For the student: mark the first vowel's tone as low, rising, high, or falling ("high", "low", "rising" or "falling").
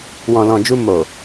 low